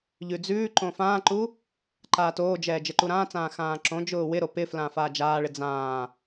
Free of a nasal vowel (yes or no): no